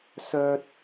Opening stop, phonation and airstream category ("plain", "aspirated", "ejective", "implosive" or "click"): plain